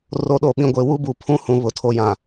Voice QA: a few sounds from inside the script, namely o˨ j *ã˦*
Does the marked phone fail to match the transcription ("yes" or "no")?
yes